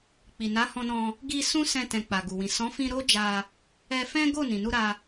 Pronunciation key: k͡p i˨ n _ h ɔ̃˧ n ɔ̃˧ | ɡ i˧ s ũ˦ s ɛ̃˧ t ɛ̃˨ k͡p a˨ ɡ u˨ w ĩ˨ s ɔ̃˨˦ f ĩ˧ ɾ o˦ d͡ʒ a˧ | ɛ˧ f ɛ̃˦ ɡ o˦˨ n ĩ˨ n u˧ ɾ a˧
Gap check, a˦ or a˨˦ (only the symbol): a˨˦